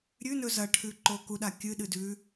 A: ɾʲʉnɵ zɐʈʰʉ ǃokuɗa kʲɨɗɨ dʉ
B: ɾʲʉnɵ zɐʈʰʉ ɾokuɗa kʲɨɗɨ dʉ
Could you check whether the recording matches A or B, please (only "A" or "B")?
A